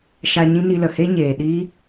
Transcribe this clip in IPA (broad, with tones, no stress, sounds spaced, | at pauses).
ʃ a˧ ɲ ĩ˦ n i˧ l ə˨ h e˦ ɲ eː˨ ɗ iː˦